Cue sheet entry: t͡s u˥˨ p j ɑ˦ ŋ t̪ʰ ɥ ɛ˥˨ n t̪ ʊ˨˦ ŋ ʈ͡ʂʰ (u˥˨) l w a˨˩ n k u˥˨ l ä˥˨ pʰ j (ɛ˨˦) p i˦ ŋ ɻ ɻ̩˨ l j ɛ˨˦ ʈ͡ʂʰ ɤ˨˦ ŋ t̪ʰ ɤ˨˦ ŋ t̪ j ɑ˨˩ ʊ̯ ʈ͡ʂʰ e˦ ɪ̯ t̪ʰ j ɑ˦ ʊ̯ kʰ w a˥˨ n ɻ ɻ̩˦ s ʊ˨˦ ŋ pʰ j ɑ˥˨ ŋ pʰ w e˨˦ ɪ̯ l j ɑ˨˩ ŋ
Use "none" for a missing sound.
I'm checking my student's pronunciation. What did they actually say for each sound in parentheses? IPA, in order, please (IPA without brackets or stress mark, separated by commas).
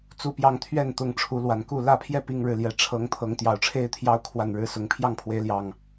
u˨˦, ɛ˥˨